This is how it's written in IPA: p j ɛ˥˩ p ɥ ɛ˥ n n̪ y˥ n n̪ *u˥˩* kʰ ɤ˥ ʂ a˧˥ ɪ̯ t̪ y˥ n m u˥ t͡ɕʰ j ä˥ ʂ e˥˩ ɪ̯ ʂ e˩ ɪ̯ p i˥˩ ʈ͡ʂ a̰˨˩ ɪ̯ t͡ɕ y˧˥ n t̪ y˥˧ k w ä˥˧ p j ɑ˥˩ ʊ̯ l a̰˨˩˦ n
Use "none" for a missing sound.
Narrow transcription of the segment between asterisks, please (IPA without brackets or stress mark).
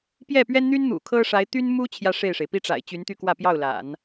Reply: ṵ˨˩